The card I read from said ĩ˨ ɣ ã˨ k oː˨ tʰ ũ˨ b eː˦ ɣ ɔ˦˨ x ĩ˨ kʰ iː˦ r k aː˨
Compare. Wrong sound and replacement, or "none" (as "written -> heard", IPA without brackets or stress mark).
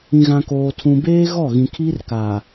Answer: x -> ɣ